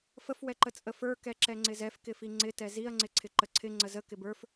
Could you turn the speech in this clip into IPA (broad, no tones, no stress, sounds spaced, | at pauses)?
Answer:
f ə f w ɛ ǃ ə t͡sʼ ə f ə˞ k ɛ ǁ ɛ ŋ͡ǀ ɪ z ɛ f k ɪ f i ŋ͡ǀ ɪ t ɛ z i ɐ̯ ŋ͡ǀ ɪ ǀʰ ɪ ǃ ə ǀʰ ɪ ŋ͡ǀ ə z ə k ɪ b ə˞ f